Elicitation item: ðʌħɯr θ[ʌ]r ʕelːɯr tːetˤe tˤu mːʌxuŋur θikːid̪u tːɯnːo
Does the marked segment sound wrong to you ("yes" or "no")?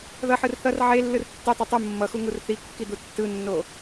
no